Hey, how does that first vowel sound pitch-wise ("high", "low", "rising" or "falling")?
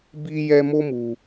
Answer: high